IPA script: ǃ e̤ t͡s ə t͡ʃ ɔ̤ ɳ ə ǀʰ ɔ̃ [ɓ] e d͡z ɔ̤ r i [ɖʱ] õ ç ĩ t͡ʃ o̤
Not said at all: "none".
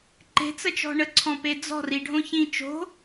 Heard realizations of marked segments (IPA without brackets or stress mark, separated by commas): p, ɖʱ